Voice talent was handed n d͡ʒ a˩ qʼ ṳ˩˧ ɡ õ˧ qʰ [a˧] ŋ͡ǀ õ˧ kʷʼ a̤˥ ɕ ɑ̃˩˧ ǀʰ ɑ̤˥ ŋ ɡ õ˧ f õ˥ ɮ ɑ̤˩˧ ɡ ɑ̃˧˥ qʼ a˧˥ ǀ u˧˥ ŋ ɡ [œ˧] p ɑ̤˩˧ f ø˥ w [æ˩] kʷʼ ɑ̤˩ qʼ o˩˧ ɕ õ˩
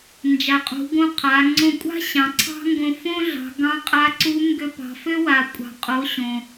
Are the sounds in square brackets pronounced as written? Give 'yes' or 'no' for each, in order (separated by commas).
no, no, no